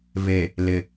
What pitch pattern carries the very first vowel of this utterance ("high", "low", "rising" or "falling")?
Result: low